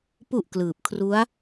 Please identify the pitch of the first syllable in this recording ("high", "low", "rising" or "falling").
low